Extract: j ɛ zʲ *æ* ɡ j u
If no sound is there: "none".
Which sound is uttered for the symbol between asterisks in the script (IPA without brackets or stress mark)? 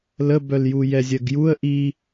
ɜ